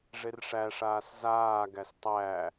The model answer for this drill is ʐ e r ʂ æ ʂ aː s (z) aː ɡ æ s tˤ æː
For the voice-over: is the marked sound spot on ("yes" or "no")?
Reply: yes